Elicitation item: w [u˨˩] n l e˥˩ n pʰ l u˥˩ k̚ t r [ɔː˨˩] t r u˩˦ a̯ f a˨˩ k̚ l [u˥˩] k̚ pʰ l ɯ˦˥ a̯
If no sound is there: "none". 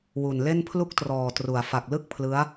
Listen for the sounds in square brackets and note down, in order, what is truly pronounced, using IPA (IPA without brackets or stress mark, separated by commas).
u˨˩, ɔː˨˩, ɯ˥˩